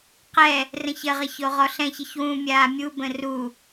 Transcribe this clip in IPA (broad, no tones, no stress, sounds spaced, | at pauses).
q ɛ | r ə̃ ç ə ʁ ɐ ç o ʁ ɔ ɬ ɛ̃ ç ə ç w ũ mʲ aː mʲ u b ə̃ r u